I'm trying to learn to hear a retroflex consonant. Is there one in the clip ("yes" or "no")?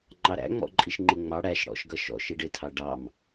yes